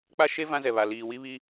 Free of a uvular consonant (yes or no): yes